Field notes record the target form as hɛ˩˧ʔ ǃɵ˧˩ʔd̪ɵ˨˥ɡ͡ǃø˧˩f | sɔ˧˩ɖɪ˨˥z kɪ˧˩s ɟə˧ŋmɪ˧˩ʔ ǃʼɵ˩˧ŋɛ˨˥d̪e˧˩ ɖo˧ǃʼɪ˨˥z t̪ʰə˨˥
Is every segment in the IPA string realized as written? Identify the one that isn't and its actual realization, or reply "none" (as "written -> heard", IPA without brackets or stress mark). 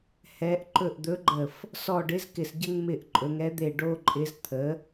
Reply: ø˧˩ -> ə˧˩